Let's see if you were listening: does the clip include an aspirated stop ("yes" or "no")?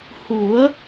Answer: no